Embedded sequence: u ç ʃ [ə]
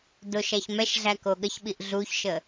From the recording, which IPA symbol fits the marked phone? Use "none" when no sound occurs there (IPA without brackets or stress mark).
ə